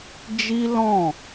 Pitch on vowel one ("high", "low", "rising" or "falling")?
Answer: high